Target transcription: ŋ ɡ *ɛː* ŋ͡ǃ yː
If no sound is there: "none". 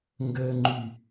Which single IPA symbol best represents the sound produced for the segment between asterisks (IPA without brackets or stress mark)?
əː